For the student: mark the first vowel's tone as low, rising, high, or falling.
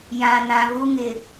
low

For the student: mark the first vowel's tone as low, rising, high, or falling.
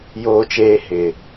high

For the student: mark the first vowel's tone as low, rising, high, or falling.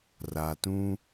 low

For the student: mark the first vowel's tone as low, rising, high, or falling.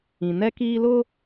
low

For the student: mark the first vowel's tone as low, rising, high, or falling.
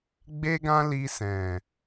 high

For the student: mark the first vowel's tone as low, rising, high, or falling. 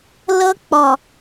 high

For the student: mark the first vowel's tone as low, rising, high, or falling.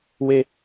high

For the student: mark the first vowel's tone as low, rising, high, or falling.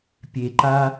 low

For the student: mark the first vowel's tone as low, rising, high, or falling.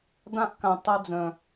high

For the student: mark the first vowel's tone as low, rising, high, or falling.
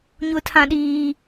high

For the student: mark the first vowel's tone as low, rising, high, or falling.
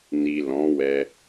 low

